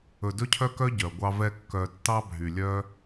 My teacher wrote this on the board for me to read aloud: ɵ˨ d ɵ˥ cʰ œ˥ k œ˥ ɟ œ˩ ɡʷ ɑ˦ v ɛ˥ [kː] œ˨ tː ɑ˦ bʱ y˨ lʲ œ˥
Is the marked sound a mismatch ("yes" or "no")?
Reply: no